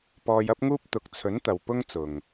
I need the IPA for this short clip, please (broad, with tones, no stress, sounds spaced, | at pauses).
p ɔː˧ j ɐ˥ p̚ ŋ uː˥ p̚ t̪ ʊ˨˥ k̚ t͡sʰ ɵ˨˥ n t̪ ɐ˨ w p ʊ˥ ŋ t͡s ʊ˨ ŋ